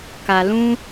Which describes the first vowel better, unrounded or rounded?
unrounded